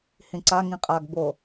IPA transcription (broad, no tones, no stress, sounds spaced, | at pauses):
h ĩ ǀ a ŋ ĩ qʼ a ɡ b o